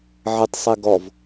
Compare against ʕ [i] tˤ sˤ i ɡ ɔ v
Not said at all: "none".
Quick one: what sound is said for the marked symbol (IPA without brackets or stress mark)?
ɪ